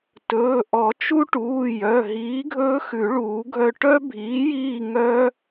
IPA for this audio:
t ɵː˩˧˩ ʔ ɔ˨˩˦ t͡ʃ u˦˥ ʈ uː˩˧˩ j œ˩˧˩ ɦ iː˩˥ ɡʱ ɵː˦˥ x ʉ˨˩˦ ɭ uː˨˩˦ ɡʱ œ˦˨ ʈ œ˦˥ bʱ iː˩˥ j iː˦˨ ŋ œ˦˥

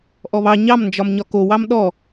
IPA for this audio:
ʔ ɔ β ɑ ɲ ɑ m n d͡ʒ ɒ m ɲ ɒ k o w ɑ m ɗ ɔ

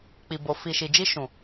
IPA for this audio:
k͡p i˨ b o˨ f i˨ ʃ i˨ d͡ʒ i˧ ʃ ũ˨

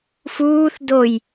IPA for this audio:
f uː θ d o j

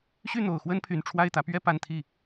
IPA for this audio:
ɕ y˥˩ n̪ o˨˩ ʊ̯ x w ə˥ n pʰ y˨˩ n ʈ͡ʂʰ w a˥˩ ɪ̯ t̪ ä˧˥ p ɥ ɛ˥ p a˥˧ n t̪ʰ i˥˩

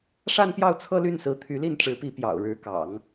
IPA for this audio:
ʂ a˥˧ n p j ɑ˥˩ ʊ̯ t͡sʰ ɤ˥ l y˥˩ n s ɹ̩˧˥ t̪ʰ y˧˥ l i˥˩ n ʈ͡ʂ ɻ̩˧˥ p i˧˥ p j ɑ̰˨˩ ʊ̯ ɻ ɻ̩˧˥ k ɑ̰˨˩˦ ŋ

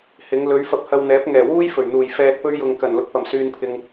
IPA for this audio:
h ɪ˨˧ ŋ l ɵ˨˧ ɥ f ɐ˧ p̚ h ɐ˧ w n̪ ɛː˨˥ p̚ ŋ ɛː˨˩ w uː˥ j f ɵ˨˩ ɥ n̪ uː˨˩ j f ɛː˨ t̚ p ɵ˧ ɥ j ʊ˨ ŋ k ɐ˨˩ n l ʊ˧ k̚ p ɐ˨˩ m s yː˧ n pʰ ɪ˧ ŋ

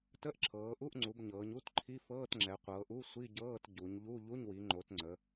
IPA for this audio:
t ə˧˥˧ ʔ ǁʰ ɤː˩˧ ʔ u˧˥˧ ʔ ŋ͡ǀ u˩˧ b ɲ ɤː˩˧ ɲ u˧˥˧ t ǃʰ i˧˥˧ f ɤː˧˥˧ t ŋ͡ǁ ɛ˩˧ qʷ ɤː˩˧ ʔ u˧˥˧ sʷ i˧˥˧ ɟ ɤː˧˥˧ t ɟ u˩˧ ɲ ʎ u˧˥˧ ʎ u˧˥˧ ɲ w i˩˧ ŋ͡ǃ o˩˧ t ŋ͡ǀ ə˩˧

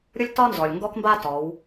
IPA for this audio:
ɾʲ ʊ˦ lʲ t ɒ˦ n z ɔ˨ lʲ ŋ ɡ ɔ˦ k m b a˦ t ɔ˨˦ w

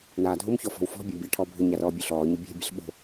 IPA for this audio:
n aː dʱ o m ç ɔ f ɔ̤ w f ɔ̤ bʲ a bʲ a ʈʰ ɔ bʱ ʊ ɲ a r ɔː bʲ ʊ ɬ ɔː ɲ ʊ bʲ ɛ̤ bʲ ə̤ ɬ ɓ o̤

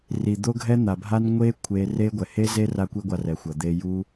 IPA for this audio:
r i˨ d̪ o˦ ɡʱ ɛ˦ n̪ a˨ bʱ a˦ n ŋʷ e˦ kʷʰ e˧ r e˦ ɡʷ ɛ˨ h e˦ z e˦ r a˦ kʷ e˦ ɡʷ a˧ r ɛ˨ xʷ ʌ˨ d̪ e˧ j u˧

